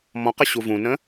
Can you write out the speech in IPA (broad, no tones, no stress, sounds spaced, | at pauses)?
m ɔ̃ q ə ɕ u v ũ n ə̃